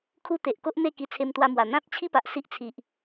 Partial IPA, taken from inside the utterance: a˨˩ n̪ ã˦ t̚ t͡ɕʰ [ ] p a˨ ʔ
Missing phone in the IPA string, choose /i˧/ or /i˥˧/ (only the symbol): i˥˧